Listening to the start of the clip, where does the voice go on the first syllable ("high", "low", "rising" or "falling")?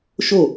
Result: falling